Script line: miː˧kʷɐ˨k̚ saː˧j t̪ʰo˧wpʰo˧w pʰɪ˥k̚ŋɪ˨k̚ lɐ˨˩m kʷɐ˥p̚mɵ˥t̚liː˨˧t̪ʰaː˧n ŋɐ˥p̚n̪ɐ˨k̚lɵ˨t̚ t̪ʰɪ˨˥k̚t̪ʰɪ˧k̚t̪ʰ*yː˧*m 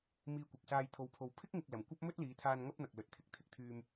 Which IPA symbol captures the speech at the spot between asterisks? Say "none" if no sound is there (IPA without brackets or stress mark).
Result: yː˧